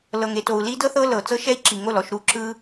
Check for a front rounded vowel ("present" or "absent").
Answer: absent